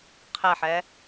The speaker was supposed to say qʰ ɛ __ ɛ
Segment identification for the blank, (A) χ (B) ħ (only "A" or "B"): B